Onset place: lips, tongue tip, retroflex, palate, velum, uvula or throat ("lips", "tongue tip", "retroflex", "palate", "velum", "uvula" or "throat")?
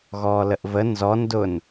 velum